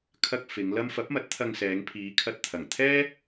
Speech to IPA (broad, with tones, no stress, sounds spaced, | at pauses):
kʰ ɐ˧ k̚ f ɪ˨˧ ŋ l ɐ˥ m f ɐ˨˥ p̚ m ɐ˨˥ t̚ t̪ʰ ɐ˧ ŋ s ɛː˨˧ ŋ pʰ iː˨˧ kʰ ɐ˧ t̚ t̪ʰ ɐ˨˩ ŋ t̪ʰ ɛː˥